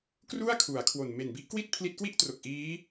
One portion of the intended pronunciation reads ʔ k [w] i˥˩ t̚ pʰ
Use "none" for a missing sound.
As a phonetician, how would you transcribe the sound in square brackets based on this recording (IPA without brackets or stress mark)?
w